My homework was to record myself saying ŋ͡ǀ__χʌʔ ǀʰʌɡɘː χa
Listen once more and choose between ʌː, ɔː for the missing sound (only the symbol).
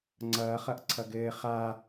ʌː